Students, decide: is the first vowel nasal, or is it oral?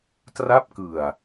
oral